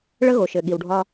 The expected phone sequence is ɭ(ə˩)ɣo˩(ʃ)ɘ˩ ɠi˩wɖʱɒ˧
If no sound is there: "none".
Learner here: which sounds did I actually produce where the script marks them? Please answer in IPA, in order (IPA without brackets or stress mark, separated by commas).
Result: ə˧, ʃ